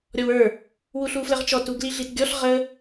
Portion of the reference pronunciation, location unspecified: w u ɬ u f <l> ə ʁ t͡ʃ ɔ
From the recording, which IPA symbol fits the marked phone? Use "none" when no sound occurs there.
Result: l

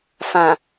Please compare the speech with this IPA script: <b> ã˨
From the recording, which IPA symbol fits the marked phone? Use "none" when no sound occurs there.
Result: f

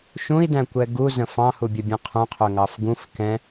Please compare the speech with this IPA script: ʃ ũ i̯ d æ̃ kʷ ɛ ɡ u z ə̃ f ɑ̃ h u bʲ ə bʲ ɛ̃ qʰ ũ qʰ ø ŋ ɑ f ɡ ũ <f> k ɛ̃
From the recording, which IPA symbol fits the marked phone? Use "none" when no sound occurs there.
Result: f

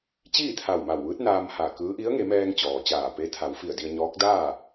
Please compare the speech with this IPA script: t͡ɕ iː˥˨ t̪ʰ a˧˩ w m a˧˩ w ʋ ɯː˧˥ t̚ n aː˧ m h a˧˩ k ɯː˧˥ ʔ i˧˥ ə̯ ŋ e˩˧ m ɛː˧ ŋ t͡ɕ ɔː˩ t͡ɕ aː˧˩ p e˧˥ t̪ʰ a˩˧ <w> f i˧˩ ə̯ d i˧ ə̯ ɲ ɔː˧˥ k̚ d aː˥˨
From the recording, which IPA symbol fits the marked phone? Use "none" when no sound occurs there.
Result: w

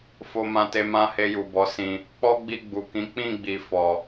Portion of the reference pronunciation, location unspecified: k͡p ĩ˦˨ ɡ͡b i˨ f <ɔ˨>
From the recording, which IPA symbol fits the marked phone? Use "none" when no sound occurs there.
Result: ɔ˨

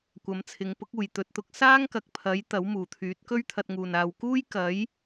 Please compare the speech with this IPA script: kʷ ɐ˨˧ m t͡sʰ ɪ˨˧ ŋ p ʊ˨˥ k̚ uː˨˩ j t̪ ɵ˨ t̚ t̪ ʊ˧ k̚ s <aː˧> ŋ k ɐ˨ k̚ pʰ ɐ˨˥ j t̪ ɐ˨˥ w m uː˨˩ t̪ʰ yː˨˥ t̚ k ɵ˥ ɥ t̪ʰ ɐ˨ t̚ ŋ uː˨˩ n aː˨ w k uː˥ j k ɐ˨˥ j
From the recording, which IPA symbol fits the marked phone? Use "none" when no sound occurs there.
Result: aː˥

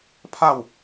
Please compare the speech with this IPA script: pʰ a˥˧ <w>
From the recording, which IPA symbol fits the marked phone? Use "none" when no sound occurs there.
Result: w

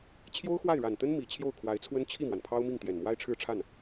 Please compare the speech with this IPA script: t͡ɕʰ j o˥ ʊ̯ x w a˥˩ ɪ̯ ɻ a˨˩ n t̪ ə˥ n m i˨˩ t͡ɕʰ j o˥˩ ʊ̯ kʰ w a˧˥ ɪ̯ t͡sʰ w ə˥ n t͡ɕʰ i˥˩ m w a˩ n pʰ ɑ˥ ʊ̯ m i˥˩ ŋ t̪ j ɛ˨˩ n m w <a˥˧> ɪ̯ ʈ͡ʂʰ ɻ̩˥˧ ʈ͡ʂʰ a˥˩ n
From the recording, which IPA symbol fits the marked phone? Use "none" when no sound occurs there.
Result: a˥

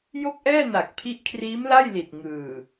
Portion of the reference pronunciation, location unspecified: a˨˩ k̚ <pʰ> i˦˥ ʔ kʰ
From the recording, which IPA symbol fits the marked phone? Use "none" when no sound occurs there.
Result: pʰ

